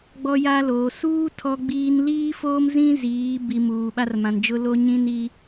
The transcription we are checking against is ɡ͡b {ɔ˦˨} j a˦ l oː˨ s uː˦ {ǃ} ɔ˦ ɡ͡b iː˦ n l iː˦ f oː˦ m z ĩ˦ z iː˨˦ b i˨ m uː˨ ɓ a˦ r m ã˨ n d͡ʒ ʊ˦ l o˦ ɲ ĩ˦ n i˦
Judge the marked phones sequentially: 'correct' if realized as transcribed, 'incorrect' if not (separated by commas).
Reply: incorrect, incorrect